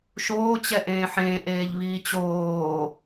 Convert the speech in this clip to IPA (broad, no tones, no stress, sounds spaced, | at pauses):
ʃ oː t͡ɕ ɛ ʔ ẽː ħ ẽː ʔ eː ʎ β iː t͡ɕ oː